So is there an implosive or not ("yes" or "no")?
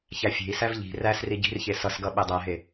yes